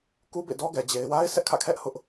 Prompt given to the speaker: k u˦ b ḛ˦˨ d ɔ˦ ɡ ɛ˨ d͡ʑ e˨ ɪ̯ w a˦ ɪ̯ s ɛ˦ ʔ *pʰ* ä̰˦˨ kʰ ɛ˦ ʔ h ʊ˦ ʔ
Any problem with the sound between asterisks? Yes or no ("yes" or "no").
yes